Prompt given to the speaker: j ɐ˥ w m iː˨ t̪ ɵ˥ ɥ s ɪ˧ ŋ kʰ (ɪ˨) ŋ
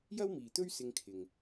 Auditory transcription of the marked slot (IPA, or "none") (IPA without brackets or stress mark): ɪ˨